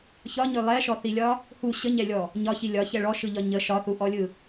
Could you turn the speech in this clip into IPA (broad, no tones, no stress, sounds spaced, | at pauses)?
ç ɒ ɲ ø lˠ ɛ ʃ ɔ θ i lʲ ɒ | h u ɕ ə ɲ ɛ lʲ ɔ | ɲ ɒ ç i lʲ ɒ ç ɛ ɭ ɔ ʃ ɯ ʎ ɒ ɲ ə ʃ ɒ θ u ʔ ɔ lʲ ɯ